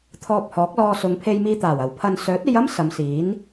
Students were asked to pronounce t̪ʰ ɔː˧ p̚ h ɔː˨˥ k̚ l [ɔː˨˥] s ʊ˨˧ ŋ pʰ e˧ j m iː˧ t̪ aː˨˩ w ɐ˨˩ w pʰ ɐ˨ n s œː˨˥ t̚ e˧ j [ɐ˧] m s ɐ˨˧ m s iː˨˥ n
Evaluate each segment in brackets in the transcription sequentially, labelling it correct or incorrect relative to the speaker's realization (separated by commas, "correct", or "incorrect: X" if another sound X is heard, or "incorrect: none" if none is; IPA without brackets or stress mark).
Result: incorrect: ɔː˧, incorrect: ɐ˥